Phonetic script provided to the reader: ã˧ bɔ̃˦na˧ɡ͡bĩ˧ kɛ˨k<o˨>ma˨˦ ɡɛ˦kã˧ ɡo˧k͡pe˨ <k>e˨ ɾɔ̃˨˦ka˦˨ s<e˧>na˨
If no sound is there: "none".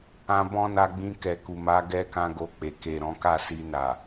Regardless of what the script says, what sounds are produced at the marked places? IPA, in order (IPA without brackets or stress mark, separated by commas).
u˨, k, i˧